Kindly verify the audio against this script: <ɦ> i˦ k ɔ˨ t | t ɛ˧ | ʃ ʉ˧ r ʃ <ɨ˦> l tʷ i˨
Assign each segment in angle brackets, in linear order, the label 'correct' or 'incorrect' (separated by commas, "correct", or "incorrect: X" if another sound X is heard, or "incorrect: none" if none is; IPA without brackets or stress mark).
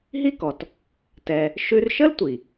correct, incorrect: ə˦